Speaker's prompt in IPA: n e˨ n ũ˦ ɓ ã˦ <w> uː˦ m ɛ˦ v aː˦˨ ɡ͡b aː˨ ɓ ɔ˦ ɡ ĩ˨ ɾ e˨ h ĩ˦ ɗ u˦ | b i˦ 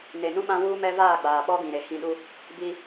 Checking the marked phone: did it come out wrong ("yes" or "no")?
no